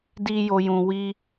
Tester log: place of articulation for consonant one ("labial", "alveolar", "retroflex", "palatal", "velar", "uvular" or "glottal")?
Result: alveolar